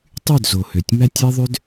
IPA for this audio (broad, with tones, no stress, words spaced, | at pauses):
tˤy˦˨dzo˨ hø˨tʲmæ˦tʲe˦ðˤø˦d